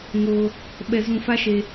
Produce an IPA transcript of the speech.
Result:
ŋoː˧ | ɓɛ˧ zũ˧fa˦ʃe˧

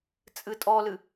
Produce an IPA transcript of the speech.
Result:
t͡sʼɨtʼɔlɨ

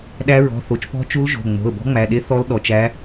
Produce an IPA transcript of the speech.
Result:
ɗæ˧˥ɹɔ̤˩˧˩ θo˩˧˩t͡ʃpɔ̤˧˥t͡ʃu˧˥l ʒo̤˩˧˩ŋ͡mo̤˩˧˩ə̯ bɔ̤˧˥ŋ͡mæ˩˧˩ ɗe˧˥ θɔ˧˥lɗɔ˩˧˩t͡ʃæ˧˥

